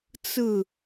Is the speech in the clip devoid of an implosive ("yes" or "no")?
yes